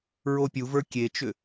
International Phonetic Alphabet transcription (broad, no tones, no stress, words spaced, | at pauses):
ɹopʲuvə˞ kʲet͡ʃʏ